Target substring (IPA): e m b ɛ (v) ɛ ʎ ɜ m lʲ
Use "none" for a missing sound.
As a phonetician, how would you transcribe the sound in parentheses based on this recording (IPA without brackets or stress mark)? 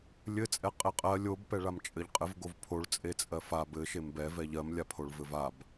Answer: v